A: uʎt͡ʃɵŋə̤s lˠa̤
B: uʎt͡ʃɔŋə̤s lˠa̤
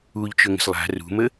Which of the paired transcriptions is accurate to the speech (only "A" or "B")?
A